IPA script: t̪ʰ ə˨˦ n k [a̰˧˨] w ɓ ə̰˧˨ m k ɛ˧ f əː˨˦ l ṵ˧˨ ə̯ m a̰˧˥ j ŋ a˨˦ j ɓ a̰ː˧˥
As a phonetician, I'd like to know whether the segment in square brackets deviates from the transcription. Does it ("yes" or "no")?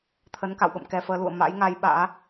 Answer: no